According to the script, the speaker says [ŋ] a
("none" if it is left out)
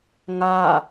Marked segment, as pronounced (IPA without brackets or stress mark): ŋ